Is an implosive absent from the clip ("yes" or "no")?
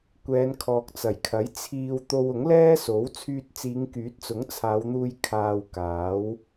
yes